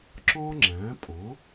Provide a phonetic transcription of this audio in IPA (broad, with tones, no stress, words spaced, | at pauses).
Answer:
ǁɔ̃˥ŋ͡ǁæ̃˩˥ pʼɔ̃˩˥